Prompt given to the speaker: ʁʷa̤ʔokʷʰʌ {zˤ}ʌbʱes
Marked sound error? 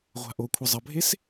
no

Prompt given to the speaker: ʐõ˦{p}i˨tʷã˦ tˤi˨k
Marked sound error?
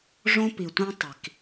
no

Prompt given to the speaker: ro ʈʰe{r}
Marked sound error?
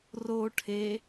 yes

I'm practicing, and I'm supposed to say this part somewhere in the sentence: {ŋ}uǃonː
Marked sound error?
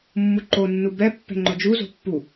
yes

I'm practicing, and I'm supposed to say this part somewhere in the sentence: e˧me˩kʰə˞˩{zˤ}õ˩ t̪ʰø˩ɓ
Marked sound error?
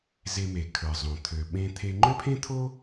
no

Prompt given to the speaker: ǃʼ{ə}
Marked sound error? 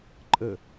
no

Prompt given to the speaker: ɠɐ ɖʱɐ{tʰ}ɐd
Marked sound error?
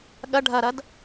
yes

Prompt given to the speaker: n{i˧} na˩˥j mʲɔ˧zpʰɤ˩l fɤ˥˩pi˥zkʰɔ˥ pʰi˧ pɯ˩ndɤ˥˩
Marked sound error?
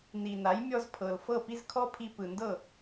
yes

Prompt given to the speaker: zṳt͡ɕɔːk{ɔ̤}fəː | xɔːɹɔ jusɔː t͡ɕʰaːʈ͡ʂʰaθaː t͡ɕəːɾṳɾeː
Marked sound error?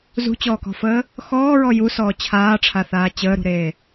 no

